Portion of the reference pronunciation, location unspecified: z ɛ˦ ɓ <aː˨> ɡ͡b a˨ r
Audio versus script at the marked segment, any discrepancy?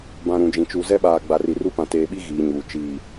no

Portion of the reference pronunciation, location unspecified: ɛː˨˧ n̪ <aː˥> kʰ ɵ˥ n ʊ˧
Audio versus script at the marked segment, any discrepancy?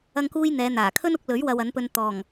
yes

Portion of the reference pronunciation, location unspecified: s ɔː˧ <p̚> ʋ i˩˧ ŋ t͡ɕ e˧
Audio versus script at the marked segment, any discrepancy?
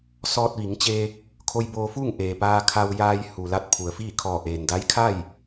yes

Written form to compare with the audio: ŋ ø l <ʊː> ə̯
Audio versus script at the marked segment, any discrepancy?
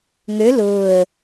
no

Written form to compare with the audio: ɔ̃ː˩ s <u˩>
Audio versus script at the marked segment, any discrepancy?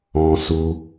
no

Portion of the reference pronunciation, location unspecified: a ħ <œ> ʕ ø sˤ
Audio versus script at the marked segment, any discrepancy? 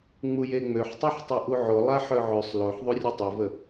no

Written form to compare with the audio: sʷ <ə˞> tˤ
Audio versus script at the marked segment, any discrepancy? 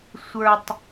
no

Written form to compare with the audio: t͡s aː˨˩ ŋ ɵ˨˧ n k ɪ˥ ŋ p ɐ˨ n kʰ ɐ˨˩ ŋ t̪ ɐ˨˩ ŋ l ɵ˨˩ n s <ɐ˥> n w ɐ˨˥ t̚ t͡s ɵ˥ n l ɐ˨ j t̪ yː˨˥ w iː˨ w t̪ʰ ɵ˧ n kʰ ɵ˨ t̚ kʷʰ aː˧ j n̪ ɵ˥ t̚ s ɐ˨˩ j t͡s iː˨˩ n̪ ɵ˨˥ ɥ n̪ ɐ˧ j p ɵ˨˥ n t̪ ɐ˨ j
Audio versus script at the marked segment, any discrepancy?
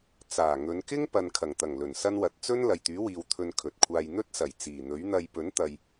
no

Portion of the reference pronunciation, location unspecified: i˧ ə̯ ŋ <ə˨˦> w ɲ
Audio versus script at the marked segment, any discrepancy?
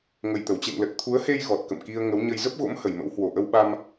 no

